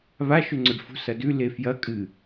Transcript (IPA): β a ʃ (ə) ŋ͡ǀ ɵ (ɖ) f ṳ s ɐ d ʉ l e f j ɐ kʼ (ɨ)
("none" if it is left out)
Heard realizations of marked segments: ɵ, ɖ, ɨ

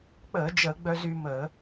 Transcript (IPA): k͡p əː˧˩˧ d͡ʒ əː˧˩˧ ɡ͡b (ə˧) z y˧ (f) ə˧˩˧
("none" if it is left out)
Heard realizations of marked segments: œ˧, m

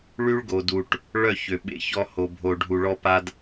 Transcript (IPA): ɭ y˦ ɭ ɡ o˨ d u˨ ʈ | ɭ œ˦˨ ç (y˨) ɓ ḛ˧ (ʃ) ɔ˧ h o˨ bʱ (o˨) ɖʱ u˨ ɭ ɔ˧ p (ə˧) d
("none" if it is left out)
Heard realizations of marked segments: ø˨, ç, o˨, a˧

